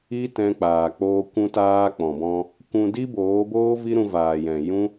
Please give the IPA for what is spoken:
iː˦ t ɛ̃˧ k͡p aː˨ k͡p oː˧ kʷ ũ˧ t aː˧ k͡p ɔ̃˨ b ɔ̃˧ | kʷ ũ˧ d i˦ b oː˨˦ b oː˦ v i˦ ɾ ũ˧ v aː˨ j ɛ̃˨ j ũ˦

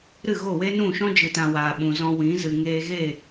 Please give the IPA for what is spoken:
ɾ ɨ˦˨ ɣ o˦˨ w e˦ n ũ˦˨ ʃ ɔ̃˦ d͡ʒ ɨ˨ t ã˨ w aː˨ ɓ ũ˨ z ɔ̃˧ w ĩ˨˦ z ɨ˨ ŋ eː˧ ɣ e˦˨

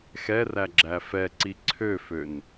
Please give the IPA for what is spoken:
x ɛ r æ ɡ͡ǁ æ f ɛ ǀ i ǀʰ ø f ø n

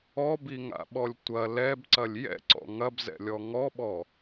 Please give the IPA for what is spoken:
ɔ b i ŋ a̰ ɓ ɔ lʲ tʷ ɐ l ɛ b ǀ ɐ lʲ j ɛ̰ ǀ ɔ̰ ŋ ɐ b z ɛ̰ lʲ ɔ ŋ ɔ ɓ ɔ

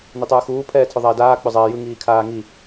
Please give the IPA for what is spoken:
n i tˤ ɯː x uː pʰ ɛː tʰ ʏ ðˤ a ɪ̯ d aː k͡p ʏ zˤ ɛː j ɯ ŋ iː kʰ aː ŋ i

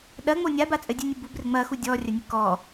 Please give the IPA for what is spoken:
ɗ ɐ ŋ͡m o nʲ a b a t͡sʼ ɘ dʲ ɨ nʲ u b u b r ɘ ŋ͡m ɐ x u dʲ ɔ rʲ ɐ nʲ ɘ k ɔ

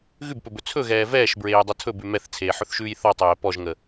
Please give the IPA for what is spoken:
ɣ ʉ b p ɵ b ɵ t͡sʰ ɵ ɣ ɛː v ɛː ʃ b ɹ eː j dˤ ə tʰ ɵ b ʉ m ɛ θ t͡sʰ eː ħ ɵ θ ʃ ʉː j θ ɔ tˤ ɛ j ɛ p ɔ ʒ ŋ ə

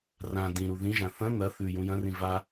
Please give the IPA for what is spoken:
r ã d ĩ ɾ u ð ĩ ʒ ã θ ɐ̃ n̪ ɐ θ ʉ j ũ j ɐ̃ r ĩ v a

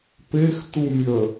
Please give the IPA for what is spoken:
p e x t u mʲ ə

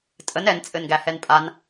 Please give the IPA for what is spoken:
tʼ ə n ɛ n t͡sʼ ɘ n ɡ æ h ɛ n pʼ a n

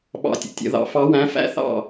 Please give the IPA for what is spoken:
ɓ ɑ̰˧˩ tʲ ə̰˩˥ tʲ ə̰˨˩˦ ð ɑ̰˩˥ f ɑ˧˥ w æ̃˧˥ f æ̰˧˥ θ ɑ̰˧˩

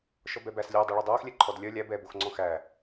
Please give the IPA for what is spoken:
ʃ ɔ b ɛ b æ s lʲ œ dˤ œ ɭ ɔ dˤ oː x lʲ ɛ ǃʰ ɔ d lʲ œ lʲ æ b ɛː b o x ŋ͡ǀ ɔ̃ x æ

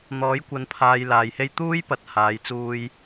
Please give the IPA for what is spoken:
n̪ ɔː˨˥ j kʷ ɐ˨˧ n pʰ aː˨ j l aː˨ j h e˥ j t̪ uː˥ j p ɐ˨ t̚ h aː˨˧ j t͡s uː˧ j

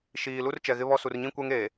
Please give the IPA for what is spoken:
ʃ iː˨ l u˦ r t͡ʃ ɛ˨ ɣ ɪ˦ β ɔ˦ s u˨ r ɲ ĩ˦ kʷ ɛ˦ ŋ eː˨

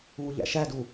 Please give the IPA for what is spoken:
uː ʎ æ̰ ʃ æ d u

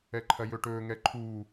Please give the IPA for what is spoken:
ɛ ǃʰ ɐ j ɵ ʈ ɵː ŋ ɛ ǃʰ uː

